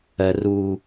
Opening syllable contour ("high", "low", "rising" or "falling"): low